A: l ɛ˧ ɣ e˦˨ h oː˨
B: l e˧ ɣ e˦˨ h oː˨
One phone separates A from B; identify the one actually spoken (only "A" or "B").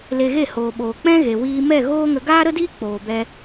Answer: B